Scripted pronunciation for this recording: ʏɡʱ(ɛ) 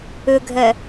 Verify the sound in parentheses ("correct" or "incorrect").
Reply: correct